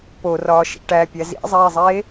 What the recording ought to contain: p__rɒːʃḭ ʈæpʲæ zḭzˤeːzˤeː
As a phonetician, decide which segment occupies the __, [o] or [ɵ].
o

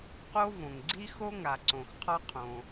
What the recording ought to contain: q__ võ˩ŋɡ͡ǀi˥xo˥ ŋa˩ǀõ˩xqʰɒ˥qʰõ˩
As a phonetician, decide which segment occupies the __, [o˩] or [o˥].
o˥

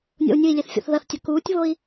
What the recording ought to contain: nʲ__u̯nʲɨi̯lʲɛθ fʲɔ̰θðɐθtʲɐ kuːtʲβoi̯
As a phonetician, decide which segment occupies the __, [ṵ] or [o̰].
o̰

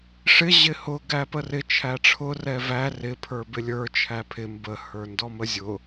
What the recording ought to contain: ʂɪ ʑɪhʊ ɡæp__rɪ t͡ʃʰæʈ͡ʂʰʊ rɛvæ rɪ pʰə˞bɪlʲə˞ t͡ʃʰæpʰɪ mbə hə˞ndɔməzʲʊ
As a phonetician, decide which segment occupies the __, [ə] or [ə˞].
ə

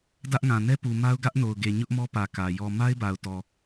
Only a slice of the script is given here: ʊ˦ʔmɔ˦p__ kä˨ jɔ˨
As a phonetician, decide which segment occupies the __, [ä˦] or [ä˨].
ä˨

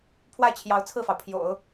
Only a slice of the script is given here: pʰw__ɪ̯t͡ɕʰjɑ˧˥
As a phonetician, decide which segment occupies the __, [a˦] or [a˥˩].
a˥˩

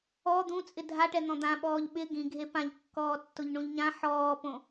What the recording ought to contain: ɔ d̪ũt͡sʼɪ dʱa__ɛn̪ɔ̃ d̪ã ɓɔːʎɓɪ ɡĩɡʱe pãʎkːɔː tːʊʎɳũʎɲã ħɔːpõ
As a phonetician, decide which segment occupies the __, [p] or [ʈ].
ʈ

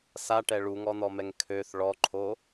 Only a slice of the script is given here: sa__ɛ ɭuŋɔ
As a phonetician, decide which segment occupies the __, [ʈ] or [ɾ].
ʈ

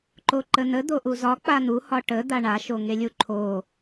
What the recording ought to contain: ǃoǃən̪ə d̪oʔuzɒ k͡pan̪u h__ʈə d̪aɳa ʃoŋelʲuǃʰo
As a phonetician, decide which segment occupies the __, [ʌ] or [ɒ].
ɒ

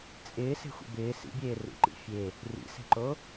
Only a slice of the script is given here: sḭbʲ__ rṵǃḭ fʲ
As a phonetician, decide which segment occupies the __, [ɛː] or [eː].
eː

